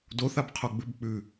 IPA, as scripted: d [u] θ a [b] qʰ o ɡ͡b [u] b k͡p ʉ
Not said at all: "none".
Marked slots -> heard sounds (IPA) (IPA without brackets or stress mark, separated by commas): o, b, ʉ